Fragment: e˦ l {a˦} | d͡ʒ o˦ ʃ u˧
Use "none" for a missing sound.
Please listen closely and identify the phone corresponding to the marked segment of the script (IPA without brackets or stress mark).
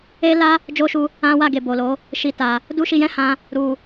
a˦